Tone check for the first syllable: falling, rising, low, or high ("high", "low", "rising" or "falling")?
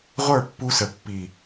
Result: falling